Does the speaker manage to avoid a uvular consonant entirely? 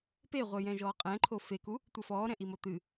no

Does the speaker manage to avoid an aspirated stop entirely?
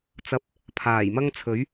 no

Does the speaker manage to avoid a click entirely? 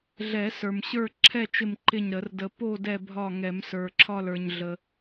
no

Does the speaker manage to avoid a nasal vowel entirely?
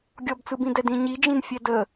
no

